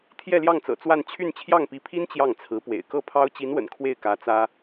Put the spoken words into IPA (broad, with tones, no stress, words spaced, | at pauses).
t̪ʰjɛ˥˧ljɑ˥˩ŋt͡sɤ̰˨˩ t͡swa˥˧n t͡ɕʰy˥˧n t͡ɕʰjɑ˥˩ŋpi˧˥pʰi˥n t͡ɕjɑ˥˩ŋt͡sʰɹ̩˧˥pwḛ˨˩ɪ̯ kɤ˥˩ pʰɑ˥ʊ̯ t͡ɕi˧˥nwə̰˨˩n kʰwe˥˩ɪ̯ kä˧˥t͡sä˥